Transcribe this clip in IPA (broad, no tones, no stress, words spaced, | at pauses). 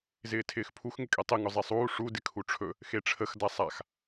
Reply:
zɪːtʰɪːxpʰux ŋɪkʼetˤɪ ŋʊzˤesˤuː ʂu dɪkʰuʈ͡ʂʰɵ | xeʈ͡ʂʰəx dasˤax